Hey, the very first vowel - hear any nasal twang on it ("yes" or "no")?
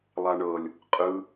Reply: no